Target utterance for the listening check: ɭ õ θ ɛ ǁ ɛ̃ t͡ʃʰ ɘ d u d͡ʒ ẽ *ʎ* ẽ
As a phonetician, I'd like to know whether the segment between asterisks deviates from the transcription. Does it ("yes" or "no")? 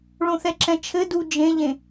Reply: no